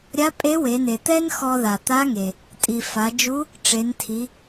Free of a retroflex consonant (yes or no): no